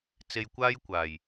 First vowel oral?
yes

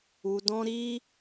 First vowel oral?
yes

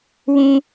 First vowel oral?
no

